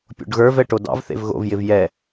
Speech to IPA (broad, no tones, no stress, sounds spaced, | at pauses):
pʲ o̰ ɖ ɣ ə˞ v ɛ ʈ o d ɑ̰ v θ ḛ v ɣ o̰ v j ɪ v j ɛ